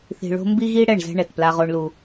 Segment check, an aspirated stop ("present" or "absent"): absent